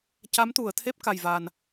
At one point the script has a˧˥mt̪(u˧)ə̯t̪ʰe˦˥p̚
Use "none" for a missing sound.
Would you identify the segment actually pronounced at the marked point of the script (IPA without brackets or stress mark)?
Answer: u˨˩˨